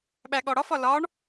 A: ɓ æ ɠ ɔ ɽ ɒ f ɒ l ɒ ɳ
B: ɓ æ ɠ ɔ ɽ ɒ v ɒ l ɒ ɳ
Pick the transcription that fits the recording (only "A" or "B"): A